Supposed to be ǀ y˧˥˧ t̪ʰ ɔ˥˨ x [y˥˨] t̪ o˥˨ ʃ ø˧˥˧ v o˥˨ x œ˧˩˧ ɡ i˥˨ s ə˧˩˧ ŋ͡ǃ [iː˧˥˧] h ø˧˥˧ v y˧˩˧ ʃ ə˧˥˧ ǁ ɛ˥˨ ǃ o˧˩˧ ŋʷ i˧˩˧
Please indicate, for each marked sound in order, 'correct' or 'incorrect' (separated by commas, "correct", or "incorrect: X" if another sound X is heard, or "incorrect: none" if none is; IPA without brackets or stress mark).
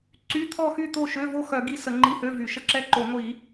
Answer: correct, incorrect: i˧˥˧